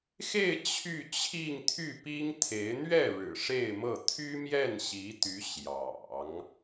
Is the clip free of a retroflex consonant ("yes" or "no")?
no